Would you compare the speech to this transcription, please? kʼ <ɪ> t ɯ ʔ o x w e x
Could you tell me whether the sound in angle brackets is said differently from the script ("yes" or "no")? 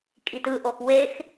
yes